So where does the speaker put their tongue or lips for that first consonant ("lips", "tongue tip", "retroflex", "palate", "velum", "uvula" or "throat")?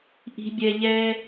throat